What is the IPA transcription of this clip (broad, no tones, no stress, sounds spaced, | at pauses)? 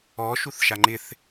ɔ ʃ u θ ʃ a ŋ͡ǃ ɪ θ